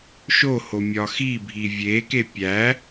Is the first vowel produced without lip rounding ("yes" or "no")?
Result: no